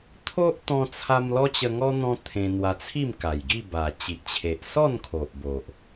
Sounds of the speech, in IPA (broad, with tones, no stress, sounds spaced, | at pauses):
t̪ʰ o˦ ʔ t̪ ɔ̃˧ t͡sʰ a˧ m l ɔ˦ t͡ɕ ə˧ ŋ ɔ˦ n̪ ɔ̃˦ t̪ʰ ẽ˧ n̪ w a˧ t͡sʰ i˥˧ m k a˨˩ j ɡ i˥˧ b a˨˩ t͡ɕ i˨ ʔ t͡ɕʰ e˨ ʔ s ɔ˥˧ n kʰ o˨ ʔ b o˨ ʔ